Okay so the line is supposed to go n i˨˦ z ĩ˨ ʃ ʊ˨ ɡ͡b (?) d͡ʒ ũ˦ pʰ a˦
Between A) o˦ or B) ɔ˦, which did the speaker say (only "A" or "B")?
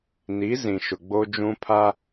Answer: A